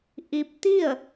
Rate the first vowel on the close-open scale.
close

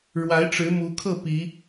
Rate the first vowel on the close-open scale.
open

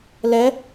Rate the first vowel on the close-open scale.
mid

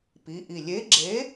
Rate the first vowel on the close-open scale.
close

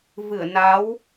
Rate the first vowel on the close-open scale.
close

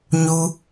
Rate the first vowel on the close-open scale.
close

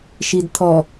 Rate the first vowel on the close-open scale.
close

